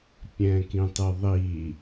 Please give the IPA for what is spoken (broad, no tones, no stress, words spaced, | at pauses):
pʲɛ̃kĩtˤɨðˤi